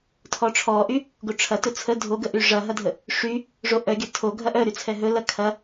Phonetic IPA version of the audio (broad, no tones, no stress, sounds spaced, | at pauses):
tʰ ɔ ʈ͡ʂʰ ɔ ʔ y | ɡ o ʈ͡ʂʰ ɐ t ɵ t͡sʰ ə dʱ o ɡ ə ʔ y ʐ ɐ ɦ ɐ dʱ ə | ʂ y | ʐ o ʔ œ ɡʲ ɐ tʰ o ɡʱ ɐ ʔ œ ɾ y t͡sʰ ɛ ɦ ɵ l ɐ kʰ ɐ